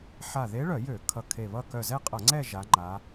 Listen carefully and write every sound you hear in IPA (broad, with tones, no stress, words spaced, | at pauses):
ħa˧˩ðe˧˥ɭœ˧˩˧jø˧˩˧ kʰʌ˧˩kʰe˧˩ βʌ˥˧ kœ˧˩zɛ˥˧qʼʌ˧˩˧ŋ͡ǀɛ˥˧ ʒa˧˥ŋ͡ǃa˧˥